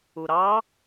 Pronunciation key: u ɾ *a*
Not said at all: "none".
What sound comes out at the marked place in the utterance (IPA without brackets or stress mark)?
ɑ